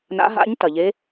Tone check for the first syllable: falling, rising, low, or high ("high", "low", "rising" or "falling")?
rising